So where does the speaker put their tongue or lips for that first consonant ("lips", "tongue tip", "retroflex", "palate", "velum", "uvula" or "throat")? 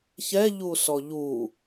palate